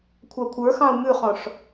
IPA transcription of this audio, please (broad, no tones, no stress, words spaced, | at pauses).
kʷʰɑkʷʰə˞xɑ̃u̯ mʉχɔ̃ʂ